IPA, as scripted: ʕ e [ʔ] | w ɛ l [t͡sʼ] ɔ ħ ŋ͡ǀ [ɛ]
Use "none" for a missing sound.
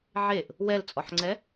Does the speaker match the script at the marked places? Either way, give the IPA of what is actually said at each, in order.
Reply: ʔ, t͡sʼ, ɛ

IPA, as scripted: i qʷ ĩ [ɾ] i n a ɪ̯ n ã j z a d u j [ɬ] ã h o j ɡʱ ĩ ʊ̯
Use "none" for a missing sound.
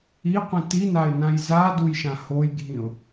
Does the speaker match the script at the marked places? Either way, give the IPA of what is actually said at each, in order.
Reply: t, ʃ

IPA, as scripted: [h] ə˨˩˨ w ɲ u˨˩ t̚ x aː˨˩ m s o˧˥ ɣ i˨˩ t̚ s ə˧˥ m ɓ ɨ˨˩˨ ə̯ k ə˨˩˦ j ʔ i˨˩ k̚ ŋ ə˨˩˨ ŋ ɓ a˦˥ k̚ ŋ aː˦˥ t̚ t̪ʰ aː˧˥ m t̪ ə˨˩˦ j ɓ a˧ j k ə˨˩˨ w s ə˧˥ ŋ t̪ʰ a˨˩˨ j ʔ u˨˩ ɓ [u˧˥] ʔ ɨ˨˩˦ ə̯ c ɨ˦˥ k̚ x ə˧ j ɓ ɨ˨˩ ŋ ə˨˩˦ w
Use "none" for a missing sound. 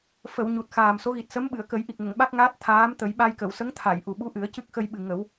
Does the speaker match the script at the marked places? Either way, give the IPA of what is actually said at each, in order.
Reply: f, u˧˥

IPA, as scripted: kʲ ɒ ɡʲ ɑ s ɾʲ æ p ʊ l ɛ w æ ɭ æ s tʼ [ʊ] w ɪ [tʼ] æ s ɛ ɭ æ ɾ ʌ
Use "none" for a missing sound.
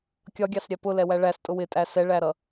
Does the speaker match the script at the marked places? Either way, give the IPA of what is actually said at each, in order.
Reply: ʊ, tʼ

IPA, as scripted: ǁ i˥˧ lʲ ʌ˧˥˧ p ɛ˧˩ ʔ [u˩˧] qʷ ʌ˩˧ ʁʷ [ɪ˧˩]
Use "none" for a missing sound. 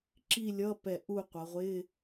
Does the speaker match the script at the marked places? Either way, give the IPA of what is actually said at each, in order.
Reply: u˥˧, ɪ˧˥˧

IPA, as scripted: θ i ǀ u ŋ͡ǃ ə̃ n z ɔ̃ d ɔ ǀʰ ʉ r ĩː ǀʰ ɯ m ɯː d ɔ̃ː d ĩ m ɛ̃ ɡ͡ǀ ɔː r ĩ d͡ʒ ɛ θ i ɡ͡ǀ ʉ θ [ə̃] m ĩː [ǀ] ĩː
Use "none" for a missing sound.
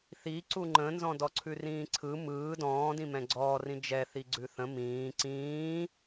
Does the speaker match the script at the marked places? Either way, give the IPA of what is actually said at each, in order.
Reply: ə̃, ǀ

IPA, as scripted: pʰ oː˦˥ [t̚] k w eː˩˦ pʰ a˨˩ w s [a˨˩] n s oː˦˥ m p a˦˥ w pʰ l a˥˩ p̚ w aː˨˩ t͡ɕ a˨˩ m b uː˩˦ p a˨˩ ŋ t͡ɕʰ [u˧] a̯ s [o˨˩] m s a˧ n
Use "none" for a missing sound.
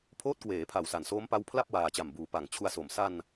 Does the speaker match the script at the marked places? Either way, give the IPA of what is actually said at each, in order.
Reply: t̚, a˨˩, u˧, o˨˩

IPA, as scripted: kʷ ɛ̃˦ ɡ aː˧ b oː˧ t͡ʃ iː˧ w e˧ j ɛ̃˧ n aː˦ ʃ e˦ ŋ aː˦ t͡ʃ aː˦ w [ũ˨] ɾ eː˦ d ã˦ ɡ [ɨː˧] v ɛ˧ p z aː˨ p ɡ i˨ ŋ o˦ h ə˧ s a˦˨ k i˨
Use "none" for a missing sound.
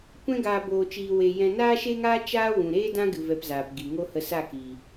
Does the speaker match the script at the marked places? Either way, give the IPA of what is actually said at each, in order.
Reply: ũ˨, ɨ˧

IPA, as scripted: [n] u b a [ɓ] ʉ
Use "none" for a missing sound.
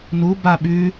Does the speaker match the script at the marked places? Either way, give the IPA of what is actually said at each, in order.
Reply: n, ɓ

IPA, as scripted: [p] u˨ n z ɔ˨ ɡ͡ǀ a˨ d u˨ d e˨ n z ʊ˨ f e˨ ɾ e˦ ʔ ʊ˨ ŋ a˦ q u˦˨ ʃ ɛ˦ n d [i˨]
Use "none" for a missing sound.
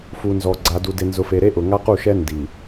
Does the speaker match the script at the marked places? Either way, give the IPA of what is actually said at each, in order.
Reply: f, i˨

